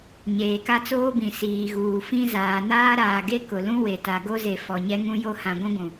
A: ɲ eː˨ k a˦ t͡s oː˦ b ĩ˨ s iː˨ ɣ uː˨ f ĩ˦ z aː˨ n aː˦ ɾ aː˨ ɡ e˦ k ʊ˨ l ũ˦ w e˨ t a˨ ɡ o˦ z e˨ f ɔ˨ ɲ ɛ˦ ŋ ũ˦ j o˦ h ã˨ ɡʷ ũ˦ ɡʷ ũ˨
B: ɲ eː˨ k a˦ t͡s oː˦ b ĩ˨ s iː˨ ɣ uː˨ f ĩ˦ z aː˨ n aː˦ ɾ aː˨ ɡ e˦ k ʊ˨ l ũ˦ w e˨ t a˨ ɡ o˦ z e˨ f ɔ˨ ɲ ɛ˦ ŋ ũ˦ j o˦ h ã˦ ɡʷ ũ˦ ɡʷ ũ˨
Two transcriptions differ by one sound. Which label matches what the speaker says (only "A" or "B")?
A